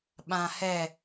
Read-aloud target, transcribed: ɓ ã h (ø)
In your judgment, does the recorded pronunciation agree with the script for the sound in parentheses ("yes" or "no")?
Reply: no